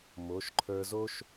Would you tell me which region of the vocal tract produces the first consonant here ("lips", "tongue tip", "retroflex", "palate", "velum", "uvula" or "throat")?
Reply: lips